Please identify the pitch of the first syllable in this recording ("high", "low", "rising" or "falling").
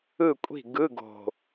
falling